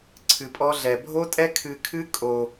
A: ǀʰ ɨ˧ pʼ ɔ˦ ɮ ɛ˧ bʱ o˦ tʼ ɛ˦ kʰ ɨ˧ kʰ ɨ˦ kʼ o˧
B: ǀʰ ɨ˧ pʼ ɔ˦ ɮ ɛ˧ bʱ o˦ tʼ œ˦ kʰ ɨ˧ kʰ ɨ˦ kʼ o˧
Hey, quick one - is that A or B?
A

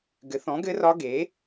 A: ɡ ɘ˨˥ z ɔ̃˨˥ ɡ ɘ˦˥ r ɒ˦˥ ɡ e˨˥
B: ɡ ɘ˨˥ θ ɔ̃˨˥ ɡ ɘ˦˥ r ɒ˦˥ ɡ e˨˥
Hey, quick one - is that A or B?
B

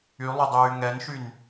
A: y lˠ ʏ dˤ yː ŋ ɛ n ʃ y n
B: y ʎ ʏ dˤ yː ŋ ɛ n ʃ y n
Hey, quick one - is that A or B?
A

